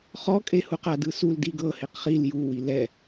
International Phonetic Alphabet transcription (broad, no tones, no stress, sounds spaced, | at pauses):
χ ɔ kʼ e h u q a d ɯ s u l d i ɡ ɤ h e q χ i l j u w i l ɛ